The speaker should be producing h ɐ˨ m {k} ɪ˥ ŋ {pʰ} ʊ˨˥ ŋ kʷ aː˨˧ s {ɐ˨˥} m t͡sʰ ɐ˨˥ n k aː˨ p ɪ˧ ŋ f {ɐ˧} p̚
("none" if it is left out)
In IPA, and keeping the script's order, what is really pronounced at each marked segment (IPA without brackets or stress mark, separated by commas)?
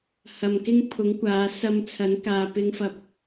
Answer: k, pʰ, ɐ˧, ɐ˧